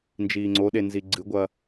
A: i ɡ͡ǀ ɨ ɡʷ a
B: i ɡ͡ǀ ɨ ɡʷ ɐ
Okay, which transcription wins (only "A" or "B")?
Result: B